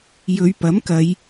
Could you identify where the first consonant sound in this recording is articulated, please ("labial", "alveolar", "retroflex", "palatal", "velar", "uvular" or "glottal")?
palatal